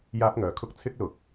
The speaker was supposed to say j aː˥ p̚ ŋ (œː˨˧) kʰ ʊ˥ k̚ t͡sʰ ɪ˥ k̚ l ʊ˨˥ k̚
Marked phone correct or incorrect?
incorrect